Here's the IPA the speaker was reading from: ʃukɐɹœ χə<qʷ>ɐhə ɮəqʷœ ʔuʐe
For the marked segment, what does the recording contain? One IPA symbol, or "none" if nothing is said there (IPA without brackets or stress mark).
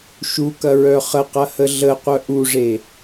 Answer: q